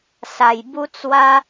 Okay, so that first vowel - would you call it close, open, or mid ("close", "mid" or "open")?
open